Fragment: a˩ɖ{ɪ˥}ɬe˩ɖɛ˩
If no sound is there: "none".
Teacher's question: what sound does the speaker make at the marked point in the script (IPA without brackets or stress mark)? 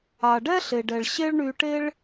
ɛ˥